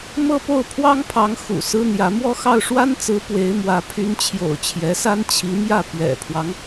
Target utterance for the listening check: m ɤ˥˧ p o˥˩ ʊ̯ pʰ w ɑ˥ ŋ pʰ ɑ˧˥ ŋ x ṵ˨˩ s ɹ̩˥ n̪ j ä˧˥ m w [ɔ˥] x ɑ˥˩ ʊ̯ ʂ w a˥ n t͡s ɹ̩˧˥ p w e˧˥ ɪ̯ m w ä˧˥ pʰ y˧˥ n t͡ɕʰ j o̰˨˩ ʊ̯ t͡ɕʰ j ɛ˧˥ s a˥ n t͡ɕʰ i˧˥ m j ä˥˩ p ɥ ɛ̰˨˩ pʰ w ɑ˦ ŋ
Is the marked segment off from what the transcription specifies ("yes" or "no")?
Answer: yes